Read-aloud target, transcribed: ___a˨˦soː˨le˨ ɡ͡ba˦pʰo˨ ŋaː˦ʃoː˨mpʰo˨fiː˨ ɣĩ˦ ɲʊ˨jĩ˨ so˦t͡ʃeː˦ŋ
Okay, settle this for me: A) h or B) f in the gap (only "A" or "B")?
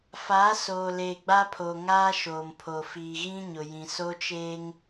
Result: B